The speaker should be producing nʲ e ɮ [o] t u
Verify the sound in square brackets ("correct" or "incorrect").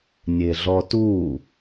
incorrect